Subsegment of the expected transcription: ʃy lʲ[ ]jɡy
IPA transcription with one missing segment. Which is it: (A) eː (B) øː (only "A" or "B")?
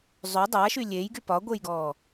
A